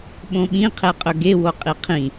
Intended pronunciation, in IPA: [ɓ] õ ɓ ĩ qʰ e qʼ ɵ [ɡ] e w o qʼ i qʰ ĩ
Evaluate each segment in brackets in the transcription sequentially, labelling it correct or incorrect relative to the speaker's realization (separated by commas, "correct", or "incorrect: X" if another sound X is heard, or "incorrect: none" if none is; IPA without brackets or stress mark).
correct, correct